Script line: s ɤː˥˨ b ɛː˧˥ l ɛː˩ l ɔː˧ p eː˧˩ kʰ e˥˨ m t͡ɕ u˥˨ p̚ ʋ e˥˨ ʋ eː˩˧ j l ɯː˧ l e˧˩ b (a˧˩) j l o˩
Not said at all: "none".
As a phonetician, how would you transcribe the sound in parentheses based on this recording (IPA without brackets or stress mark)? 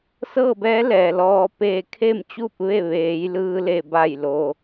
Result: a˧˩